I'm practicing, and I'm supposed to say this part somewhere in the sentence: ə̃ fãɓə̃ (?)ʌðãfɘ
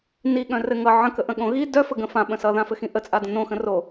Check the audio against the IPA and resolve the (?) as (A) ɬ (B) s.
B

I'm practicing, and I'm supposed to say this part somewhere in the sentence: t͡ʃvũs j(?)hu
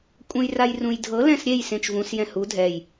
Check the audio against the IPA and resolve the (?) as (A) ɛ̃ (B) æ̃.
A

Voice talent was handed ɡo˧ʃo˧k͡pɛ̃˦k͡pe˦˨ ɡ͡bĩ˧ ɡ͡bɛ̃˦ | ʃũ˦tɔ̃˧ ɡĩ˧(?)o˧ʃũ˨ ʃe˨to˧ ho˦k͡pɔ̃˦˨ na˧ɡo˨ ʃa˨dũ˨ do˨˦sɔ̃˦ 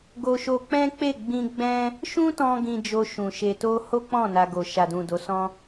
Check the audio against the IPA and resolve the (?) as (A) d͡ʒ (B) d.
A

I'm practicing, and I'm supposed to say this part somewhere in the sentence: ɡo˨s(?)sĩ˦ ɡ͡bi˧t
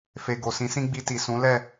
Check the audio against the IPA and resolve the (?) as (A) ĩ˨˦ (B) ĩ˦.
A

